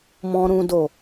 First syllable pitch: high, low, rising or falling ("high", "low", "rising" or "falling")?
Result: low